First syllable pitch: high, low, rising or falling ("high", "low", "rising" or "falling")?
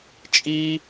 low